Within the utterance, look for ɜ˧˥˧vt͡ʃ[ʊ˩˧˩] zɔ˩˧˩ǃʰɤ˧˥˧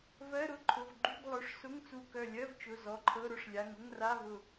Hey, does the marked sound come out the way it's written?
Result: yes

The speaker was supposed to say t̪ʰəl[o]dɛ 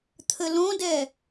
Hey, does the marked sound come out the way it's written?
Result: no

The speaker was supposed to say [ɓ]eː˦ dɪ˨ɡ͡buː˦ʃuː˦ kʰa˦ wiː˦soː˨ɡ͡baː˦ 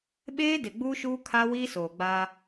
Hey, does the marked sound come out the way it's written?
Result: yes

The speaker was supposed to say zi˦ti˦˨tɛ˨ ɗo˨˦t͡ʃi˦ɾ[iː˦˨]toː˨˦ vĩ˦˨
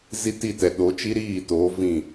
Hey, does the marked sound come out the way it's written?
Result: yes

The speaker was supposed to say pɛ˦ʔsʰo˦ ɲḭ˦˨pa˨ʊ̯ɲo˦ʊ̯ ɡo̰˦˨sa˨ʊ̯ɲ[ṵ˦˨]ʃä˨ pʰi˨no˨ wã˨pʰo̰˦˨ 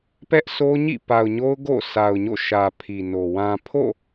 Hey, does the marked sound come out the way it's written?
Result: no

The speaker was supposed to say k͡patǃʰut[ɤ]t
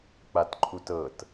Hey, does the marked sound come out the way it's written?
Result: yes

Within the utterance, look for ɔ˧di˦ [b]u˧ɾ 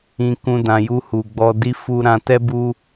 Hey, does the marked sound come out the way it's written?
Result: no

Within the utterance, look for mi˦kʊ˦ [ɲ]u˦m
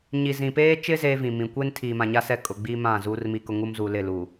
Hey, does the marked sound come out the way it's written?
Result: no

